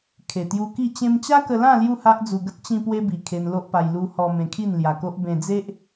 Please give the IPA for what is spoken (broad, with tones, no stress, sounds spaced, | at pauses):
kʰ e˨˩ t̪ j u˧ k i˥˧ t͡ɕ ẽ˧ m t͡ɕ a˦ k ə˧ l ã˥˧ l j u˥˧ h a˦ ʔ d͡z u˧ ɡ ə˦ t̚ t͡ɕ ĩ˧ p w e˧ b i˨˩ kʰ e˧ n l o˦ ʔ p a˧ j l u˧ h ɔ˧ m ẽ˧ kʰ i˥˧ n l j a˧ k o˦ ʔ b ẽ˧ d͡z e˦ ʔ